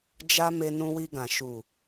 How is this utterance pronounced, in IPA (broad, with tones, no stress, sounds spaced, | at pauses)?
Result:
d͡ʒ a˧ m e˧ n ũ˧ w i˧ ɡ ã˨ ʃ u˨